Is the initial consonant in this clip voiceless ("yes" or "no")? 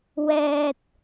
no